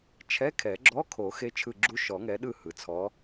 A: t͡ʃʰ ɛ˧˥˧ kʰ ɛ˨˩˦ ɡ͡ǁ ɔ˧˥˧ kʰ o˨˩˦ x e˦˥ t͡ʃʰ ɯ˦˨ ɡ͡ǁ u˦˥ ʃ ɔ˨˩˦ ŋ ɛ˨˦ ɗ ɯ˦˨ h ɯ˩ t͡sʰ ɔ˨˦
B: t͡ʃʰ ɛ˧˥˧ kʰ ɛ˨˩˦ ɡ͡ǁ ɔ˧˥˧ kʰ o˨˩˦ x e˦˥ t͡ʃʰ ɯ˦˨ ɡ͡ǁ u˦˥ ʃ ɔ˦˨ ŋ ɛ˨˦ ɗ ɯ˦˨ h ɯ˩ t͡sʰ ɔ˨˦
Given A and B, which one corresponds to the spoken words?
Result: A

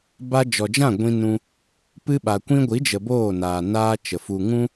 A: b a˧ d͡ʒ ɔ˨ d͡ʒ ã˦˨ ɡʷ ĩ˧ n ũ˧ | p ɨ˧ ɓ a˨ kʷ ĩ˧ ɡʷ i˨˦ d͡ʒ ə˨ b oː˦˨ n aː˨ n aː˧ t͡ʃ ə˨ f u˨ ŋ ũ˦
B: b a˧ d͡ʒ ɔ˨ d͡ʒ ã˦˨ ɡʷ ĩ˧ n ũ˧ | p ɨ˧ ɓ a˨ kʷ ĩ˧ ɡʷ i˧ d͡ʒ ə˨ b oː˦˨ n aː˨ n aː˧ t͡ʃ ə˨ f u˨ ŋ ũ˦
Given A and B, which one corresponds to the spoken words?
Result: A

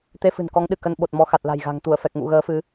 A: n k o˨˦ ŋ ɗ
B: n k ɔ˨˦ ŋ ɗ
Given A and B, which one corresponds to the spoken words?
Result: B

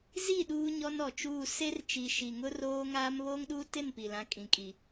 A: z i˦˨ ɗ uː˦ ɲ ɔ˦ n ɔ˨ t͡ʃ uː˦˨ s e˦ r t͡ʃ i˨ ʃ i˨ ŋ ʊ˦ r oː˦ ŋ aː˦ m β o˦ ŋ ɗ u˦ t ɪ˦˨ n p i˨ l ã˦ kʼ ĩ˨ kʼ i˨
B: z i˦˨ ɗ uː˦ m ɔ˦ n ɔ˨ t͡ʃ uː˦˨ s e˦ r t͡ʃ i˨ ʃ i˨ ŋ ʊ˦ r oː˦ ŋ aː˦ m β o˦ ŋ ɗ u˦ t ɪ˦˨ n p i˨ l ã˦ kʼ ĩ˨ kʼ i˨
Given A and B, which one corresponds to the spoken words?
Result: A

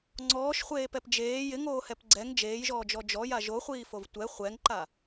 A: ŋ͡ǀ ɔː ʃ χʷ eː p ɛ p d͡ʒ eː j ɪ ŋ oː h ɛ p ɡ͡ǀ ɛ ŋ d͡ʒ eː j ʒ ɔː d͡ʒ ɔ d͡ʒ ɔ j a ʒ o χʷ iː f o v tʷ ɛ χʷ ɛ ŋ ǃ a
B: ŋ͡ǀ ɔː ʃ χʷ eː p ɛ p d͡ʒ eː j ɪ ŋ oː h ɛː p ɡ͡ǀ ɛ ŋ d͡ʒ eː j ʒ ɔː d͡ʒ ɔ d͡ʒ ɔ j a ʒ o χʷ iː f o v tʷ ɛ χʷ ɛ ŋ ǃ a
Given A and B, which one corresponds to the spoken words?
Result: A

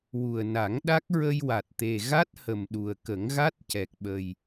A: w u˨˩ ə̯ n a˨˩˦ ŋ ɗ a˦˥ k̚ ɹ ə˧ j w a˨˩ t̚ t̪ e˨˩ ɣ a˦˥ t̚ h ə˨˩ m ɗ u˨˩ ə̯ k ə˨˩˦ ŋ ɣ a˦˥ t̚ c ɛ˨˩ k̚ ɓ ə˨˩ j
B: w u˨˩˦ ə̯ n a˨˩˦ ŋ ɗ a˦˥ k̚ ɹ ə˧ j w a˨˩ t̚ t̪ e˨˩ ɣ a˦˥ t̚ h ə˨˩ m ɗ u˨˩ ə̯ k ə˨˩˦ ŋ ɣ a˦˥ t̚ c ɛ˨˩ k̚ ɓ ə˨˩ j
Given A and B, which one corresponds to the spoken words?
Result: A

